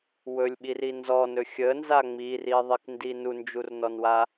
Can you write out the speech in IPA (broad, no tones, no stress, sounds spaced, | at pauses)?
w ɵ lʲ ɓ i r i n z ɔ n ɵ xʲ ə n z a ŋ͡m i r i ðˤ i k n d i n u n d͡ʒ u r n ɔ n w a